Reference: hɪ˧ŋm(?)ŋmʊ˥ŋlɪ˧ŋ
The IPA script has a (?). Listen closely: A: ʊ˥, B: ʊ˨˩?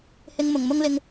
B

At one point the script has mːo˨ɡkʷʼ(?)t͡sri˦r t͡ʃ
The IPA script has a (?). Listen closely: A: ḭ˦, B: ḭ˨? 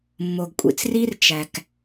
B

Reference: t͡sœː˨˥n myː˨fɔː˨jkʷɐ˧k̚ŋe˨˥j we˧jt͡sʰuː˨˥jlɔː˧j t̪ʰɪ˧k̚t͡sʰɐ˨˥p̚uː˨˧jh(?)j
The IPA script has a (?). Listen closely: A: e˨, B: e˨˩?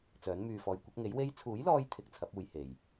A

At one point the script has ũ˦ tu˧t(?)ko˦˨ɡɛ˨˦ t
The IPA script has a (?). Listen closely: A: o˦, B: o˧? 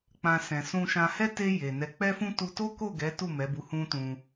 A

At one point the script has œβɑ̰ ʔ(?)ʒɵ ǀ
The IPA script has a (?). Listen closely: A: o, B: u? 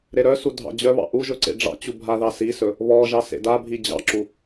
B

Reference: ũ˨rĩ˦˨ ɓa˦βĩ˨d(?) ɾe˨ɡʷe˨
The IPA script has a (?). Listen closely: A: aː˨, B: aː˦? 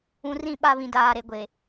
A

